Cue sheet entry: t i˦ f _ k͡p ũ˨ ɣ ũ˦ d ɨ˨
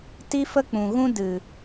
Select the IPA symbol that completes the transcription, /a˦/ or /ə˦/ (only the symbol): ə˦